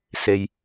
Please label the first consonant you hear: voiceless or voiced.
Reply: voiceless